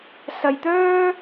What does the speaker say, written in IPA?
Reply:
s ɐ˧ j t̪ œː˥

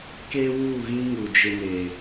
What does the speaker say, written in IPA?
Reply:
k eː˦ w uː˦˨ ɣ ĩ˦ ŋ u˨ d͡ʒ ɪ˦ n eː˨

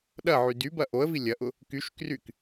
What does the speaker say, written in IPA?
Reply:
ɗ ɐ ʕ y d y b ɐ ʔ o ə̯ v i lʲ ɐ ʔ ʊ | k y ʃ k r y k

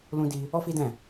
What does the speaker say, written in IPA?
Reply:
l ũ˦ d i˦ | ɔ˦ f i˦ d ɛ̃˦˨

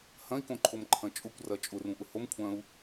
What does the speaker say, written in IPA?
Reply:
h ɐ̃ i̯ k õ ǃʰ o m ǃʰ ɐ̃ t͡ʃʼ ʊ kʷ r ɐ t͡ʃʼ ʊ r ũ ʔ ʊ h o m kʷʰ ɐ̃ u̯

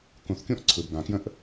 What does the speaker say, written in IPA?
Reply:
k ũ˧ θ kʲ ũ˥ ʔ ǀʰ ɯ˧ b ɡ ã˧ k j ə̃˥ ʔ

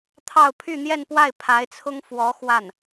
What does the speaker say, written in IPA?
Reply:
t̪ʰ ɑ˥˧ ʊ̯ pʰ y˥˧ n̪ j ɛ˥˧ n p w a˥˩ ɪ̯ pʰ a˧˥ ɪ̯ t͡sʰ ʊ˥ ŋ f w ɔ˧˥ x w a˥˩ n

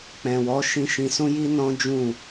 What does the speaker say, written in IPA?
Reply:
k͡p ɛ̃˨ w ɔ˨˦ ʃ ĩ˧ ʃ ĩ˧ s ũ˦ j i˦ n ɔ̃˦ d͡ʒ ũ˦˨

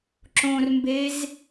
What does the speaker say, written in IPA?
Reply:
ǁ õ r m b e z

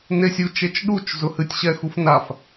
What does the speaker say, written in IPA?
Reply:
n e sʲ u t͡ʃ e t͡ʃ ɗ u t͡ʃ z ʊ h ɨ tʲ ɕ ɛ x u f n a f

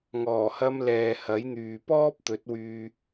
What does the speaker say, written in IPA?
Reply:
ŋ ɔː˨˩ h ɐ˧ m l ɛː˨ h ɐ˨˥ j n̪ yː˨ p ɔː˥ p̚ t̪ ɵ˨˥ t̚ w yː˧

